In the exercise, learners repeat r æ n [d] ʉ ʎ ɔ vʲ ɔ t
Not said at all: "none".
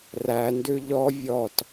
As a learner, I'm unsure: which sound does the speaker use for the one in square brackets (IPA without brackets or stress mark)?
d